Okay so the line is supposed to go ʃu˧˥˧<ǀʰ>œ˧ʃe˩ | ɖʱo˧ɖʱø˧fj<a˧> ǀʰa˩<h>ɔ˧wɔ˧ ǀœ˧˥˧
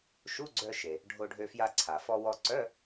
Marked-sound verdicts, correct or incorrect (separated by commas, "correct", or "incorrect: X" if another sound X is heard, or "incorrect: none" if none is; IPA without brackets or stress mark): incorrect: ɡ͡ǀ, correct, incorrect: f